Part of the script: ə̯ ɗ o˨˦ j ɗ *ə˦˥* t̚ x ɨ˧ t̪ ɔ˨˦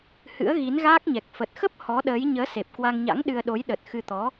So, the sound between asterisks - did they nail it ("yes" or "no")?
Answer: no